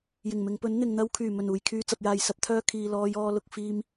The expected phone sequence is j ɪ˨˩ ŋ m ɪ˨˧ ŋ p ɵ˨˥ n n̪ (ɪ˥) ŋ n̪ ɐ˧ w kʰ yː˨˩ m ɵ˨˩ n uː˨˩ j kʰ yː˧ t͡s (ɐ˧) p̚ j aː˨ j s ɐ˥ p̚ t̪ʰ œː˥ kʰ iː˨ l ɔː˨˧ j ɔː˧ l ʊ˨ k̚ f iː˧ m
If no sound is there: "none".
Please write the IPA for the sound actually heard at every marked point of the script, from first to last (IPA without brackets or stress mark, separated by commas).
ɪ˨, ɐ˨